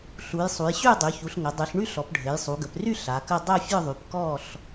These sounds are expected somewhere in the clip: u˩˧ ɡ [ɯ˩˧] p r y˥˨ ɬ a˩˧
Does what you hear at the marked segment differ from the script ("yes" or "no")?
yes